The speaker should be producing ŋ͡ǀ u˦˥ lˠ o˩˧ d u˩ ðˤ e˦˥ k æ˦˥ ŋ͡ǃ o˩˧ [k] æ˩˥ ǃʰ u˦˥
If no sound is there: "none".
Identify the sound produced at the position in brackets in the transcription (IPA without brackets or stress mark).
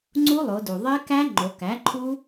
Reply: k